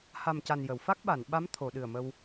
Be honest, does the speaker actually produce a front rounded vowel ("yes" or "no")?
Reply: no